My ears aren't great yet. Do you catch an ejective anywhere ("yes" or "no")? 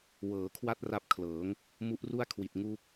no